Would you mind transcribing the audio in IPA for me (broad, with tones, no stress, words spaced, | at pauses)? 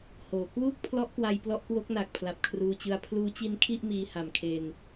hoː˩˦ kwuː˥˩k̚pʰlɔ˦˥ʔ kwa˧jplɔ˦˥ʔkwo˦˥k̚ na˨˩k̚pʰla˨˩p̚kʰruː˧t͡ɕɯ˧a̯ pʰluː˦˥t͡ɕi˦˥nkʰi˥˩ʔ miː˧ ha˨˩mkʰe˧n